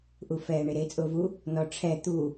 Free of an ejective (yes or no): no